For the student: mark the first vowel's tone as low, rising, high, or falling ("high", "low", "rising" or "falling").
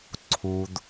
low